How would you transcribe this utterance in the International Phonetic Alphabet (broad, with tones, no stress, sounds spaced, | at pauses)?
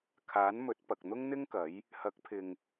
kʰ aː˨˥ n m ɵ˨˥ t̚ p ɐ˨ k̚ n̪ ʊ˥ ŋ n̪ ɪ˥ ŋ k ɐ˨˥ j | h ɐ˨˥ k̚ pʰ ɪ˨ ŋ